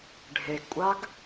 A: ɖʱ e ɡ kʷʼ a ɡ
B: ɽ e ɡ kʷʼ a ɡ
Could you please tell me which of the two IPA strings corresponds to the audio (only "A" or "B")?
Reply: A